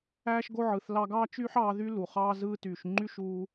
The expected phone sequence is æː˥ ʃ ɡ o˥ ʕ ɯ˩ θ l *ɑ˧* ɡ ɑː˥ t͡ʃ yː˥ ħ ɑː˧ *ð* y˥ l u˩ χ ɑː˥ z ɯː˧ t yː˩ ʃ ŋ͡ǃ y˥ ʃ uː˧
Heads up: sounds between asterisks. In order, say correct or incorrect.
correct, correct

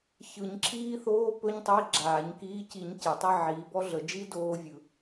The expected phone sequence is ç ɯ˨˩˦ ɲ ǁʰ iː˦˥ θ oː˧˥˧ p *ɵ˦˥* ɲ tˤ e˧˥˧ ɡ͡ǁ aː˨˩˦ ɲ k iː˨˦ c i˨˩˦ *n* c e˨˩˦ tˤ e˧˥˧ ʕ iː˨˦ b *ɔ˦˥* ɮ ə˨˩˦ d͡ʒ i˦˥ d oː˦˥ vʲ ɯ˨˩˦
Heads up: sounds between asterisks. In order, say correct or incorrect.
correct, incorrect: ɲ, correct

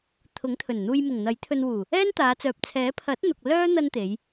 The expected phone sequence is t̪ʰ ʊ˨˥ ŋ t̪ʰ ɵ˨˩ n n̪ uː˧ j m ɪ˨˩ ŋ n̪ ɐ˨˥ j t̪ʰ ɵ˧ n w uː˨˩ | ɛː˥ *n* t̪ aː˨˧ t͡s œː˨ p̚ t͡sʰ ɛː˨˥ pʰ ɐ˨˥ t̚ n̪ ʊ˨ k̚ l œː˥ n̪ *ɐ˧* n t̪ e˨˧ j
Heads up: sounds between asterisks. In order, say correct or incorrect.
correct, correct

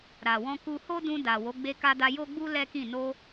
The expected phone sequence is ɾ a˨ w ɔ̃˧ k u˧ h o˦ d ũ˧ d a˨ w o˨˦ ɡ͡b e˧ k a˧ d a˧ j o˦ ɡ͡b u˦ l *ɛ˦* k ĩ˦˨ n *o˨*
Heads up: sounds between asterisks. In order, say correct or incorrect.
correct, incorrect: o˧

